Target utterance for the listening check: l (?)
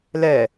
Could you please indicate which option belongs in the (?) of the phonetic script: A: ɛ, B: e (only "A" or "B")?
A